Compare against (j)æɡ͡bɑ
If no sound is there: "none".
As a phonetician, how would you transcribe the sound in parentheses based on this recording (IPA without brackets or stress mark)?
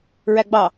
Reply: ɹ